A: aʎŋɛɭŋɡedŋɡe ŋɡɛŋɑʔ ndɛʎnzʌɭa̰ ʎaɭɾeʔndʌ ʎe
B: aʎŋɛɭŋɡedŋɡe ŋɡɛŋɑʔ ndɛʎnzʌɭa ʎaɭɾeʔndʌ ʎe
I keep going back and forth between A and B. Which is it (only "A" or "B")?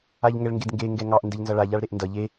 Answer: B